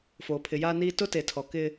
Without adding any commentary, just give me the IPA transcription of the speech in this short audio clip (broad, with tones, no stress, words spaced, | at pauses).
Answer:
foː˨pʰɪ˨jaː˦niː˦ tʊ˦te˨tʰɔ˨ kɪ˦